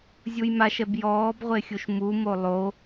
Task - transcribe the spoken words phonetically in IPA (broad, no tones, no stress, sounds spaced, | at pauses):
zʲ u j m a ʃ ɛ b j ɔː b ʁʷ e xʲ u ʃ m u m o lˠ o